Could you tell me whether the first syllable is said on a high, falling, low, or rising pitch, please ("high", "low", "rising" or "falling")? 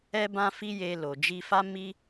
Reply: high